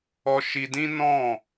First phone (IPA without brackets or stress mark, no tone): ɔ